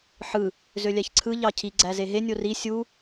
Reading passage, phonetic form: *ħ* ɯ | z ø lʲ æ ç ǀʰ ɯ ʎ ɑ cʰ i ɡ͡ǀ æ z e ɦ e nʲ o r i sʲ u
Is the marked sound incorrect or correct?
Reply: correct